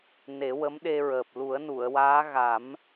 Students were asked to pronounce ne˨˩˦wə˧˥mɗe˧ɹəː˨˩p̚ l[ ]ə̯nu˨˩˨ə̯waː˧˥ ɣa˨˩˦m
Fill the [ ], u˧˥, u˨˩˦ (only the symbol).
u˨˩˦